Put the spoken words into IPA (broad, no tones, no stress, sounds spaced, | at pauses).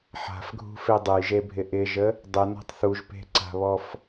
ħ a̤ f ɡʱ ṳ f e dˤ ə j ʒ e bʱ ɪ ʔ ɪ ʒ ə | dˤ ə n ɔ̤ tˤ θ u ʒ p e̤ ǀ a̤ β ɔ f